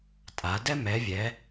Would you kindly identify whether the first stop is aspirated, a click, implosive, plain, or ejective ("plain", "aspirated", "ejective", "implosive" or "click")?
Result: ejective